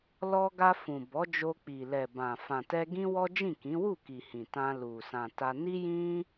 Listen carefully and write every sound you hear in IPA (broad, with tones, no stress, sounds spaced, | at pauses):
l ɔ˧ ɡ a˧ f ũ˨ b ɔ˨˦ d͡ʒ o˧ k͡p i˨ l ɛ˨ b ã˨ f ã˨ t ɛ˧ ɡ ĩ˦ w ɔ˦ d͡ʒ ĩ˦˨ k ĩ˨˦ w u˦˨ k i˨ h ĩ˨ t ã˧ l u˨ s ã˨ t a˧ n i˦ j ĩ˦